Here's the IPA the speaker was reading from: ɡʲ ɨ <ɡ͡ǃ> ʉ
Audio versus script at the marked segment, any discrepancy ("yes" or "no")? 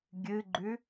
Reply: no